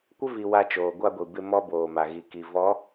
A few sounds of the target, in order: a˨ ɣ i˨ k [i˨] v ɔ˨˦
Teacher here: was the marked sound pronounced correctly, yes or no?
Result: yes